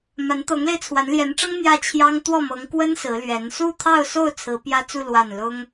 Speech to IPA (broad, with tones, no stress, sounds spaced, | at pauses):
m a˧˥ n t̪ ɤ˧˥ ŋ l e˧ ɪ̯ t͡sʰ w a˧˥ n l j ɛ˧˥ n ʈ͡ʂ ɤ˥ ŋ n̪ j ä˥˩ t͡ɕʰ j ɑ˥ ŋ t̪ w ɔ˥˩ m ɤ˧˥ ŋ k w ə˥ n s ɹ̩˧˥ l ɥ ɛ˧˥ n s u˥˧ t̪ʰ ɑ˥˧ ʊ̯ s o˥˩ ʊ̯ t͡sʰ ɹ̩˧˥ p j ä˥ t͡s u˥˧ l w a˥˩ n l ʊ˥ ŋ